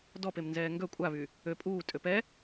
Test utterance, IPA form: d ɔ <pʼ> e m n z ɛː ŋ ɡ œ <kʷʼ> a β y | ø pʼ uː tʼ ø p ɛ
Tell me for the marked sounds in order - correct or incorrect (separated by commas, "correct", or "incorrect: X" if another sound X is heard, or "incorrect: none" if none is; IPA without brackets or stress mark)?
incorrect: p, correct